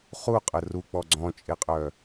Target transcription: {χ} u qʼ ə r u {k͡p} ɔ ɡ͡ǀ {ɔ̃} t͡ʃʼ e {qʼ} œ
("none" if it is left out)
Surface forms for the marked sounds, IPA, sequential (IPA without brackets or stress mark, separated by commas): χ, k͡p, ɔ̃, qʼ